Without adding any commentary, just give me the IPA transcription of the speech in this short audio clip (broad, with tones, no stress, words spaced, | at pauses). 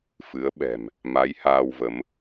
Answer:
fɨ˨˦ə̯ɓɛ̤˨˩m | ma˨˦j haː˧wvə˨˦m